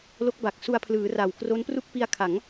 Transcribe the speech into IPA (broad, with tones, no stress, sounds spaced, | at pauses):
l o˦˥ k̚ b a˨˩ k̚ s u˧ a̯ pʰ l ɯː˩˦ r a˨˩ w k r o˦˥ n p r u˥˩ k̚ p i˦˥ a̯ kʰ a˩˦ ŋ